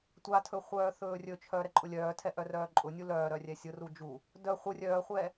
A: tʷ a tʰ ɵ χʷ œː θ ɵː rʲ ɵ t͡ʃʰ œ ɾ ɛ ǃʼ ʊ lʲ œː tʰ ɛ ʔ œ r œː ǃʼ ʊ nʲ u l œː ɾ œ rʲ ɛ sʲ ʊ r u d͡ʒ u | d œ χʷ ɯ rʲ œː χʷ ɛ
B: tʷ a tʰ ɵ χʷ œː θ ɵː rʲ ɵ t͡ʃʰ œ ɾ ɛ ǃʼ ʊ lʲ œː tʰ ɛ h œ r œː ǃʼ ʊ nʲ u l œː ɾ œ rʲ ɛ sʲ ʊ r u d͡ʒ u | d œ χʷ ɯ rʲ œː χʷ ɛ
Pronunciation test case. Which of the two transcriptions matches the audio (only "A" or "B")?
A